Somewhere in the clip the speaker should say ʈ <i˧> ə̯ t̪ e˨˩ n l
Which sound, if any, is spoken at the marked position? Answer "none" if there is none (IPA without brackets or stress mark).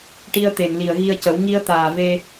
i˧